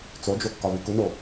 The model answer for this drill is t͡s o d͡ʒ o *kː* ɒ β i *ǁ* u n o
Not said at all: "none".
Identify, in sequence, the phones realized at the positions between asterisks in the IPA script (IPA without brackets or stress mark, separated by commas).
kː, k